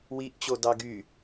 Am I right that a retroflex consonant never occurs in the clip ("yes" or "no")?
yes